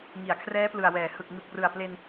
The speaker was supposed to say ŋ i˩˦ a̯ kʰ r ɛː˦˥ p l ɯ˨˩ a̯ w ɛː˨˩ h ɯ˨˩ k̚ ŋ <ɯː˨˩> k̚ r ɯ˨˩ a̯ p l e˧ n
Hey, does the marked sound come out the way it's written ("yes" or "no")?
no